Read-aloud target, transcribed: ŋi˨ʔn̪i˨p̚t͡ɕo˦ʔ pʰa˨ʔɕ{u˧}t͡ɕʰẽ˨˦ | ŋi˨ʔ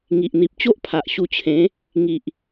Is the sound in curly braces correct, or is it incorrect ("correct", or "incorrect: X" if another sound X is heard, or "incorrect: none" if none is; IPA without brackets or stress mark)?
correct